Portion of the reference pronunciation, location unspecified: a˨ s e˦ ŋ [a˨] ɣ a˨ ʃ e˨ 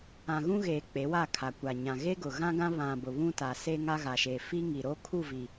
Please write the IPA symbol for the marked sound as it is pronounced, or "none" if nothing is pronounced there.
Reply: a˦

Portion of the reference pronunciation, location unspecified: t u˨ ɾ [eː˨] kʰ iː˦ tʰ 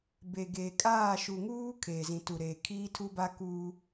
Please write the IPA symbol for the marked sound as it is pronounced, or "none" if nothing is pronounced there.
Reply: eː˨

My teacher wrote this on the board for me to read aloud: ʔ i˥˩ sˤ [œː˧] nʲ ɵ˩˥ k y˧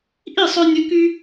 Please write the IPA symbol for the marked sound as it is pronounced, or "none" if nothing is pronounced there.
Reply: œ˧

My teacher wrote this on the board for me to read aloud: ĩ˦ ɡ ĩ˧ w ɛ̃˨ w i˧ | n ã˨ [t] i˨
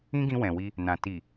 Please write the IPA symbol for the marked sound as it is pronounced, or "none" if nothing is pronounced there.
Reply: t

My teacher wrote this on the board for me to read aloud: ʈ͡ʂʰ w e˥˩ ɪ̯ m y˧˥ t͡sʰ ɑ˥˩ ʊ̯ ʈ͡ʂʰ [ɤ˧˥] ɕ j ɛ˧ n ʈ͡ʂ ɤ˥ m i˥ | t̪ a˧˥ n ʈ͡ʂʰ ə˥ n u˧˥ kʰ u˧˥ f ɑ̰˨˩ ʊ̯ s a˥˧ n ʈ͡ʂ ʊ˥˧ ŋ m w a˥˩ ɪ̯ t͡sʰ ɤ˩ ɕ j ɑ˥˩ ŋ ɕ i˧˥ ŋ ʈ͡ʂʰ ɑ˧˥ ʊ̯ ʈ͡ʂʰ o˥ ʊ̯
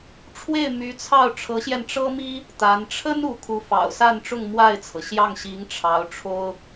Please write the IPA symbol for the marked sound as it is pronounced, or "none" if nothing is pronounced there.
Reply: ɤ˧˥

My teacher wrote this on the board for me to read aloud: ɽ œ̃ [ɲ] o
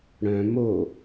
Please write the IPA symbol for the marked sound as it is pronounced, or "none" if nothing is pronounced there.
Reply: m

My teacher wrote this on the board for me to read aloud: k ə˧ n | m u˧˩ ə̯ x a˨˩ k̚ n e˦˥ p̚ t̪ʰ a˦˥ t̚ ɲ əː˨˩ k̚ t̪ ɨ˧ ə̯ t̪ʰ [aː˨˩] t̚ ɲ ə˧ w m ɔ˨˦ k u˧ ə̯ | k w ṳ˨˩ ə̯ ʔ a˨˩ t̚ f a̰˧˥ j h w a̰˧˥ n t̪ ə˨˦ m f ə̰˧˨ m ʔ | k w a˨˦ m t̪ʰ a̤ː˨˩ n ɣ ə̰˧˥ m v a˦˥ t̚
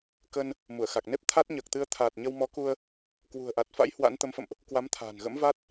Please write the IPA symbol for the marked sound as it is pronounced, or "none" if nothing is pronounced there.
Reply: aː˨˩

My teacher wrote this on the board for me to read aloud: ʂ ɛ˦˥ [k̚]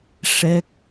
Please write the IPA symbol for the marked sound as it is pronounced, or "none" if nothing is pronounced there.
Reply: k̚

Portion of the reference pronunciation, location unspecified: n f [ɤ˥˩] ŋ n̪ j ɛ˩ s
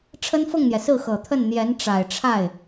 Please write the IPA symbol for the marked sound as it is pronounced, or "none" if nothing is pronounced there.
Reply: ɤ˥˩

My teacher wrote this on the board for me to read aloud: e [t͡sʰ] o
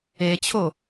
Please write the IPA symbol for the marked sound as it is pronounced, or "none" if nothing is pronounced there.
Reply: t͡ɕʰ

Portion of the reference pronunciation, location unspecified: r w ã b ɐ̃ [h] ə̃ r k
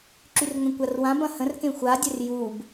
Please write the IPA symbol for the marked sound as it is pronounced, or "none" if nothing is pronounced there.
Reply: h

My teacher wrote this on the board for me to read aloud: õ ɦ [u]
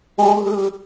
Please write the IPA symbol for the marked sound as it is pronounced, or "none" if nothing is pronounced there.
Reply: ɯ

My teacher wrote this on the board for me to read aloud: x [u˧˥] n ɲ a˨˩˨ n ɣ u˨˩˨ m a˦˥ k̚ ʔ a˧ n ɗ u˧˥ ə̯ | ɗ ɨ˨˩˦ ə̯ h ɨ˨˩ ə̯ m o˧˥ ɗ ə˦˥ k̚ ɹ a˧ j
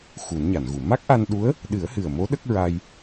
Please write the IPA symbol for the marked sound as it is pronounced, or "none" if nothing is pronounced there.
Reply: u˨˩˦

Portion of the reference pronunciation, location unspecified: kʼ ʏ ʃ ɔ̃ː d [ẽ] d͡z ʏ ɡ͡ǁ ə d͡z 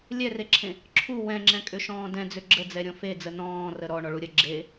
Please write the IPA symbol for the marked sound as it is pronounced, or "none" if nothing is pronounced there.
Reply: ɛ̃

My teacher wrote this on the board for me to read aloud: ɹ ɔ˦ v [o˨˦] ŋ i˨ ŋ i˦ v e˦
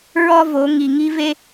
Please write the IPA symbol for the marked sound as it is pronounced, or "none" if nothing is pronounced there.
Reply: o˨˦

